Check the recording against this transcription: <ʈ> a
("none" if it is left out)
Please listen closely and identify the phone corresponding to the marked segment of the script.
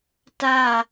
t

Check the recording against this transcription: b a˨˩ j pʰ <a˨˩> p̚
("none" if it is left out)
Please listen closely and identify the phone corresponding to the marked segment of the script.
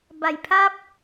a˥˩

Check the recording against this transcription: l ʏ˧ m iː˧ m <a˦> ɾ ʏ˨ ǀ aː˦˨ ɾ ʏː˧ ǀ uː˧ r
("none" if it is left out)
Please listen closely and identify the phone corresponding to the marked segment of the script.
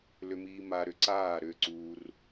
a˧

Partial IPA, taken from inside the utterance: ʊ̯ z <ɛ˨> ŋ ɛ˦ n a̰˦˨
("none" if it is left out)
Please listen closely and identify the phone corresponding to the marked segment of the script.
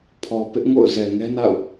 ɛ˨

